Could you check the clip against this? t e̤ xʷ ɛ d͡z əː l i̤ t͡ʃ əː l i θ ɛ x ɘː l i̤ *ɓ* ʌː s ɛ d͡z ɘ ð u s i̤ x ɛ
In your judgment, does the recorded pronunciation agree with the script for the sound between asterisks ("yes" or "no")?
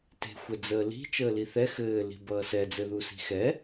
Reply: no